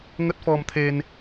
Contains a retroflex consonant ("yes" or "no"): no